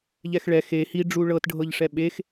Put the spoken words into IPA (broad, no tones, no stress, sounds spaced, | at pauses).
ʎ ɛ x ɭ ɛ x e h i ɖ͡ʐ u ɭ ɤ t ɖʱ ɤ ʎ ʂ ɛ ɓ e x